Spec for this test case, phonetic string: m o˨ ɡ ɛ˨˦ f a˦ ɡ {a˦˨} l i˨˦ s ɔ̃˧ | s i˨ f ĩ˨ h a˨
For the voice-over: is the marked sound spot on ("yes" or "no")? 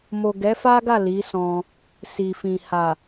yes